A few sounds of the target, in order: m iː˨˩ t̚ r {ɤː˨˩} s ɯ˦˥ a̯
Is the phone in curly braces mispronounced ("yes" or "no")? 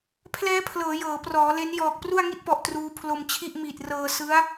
yes